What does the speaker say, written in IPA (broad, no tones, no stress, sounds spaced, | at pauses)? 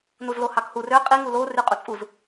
n u z l o h ɑ k h u r ø qʼ i ŋ u l o r y qʼ u t͡sʼ u z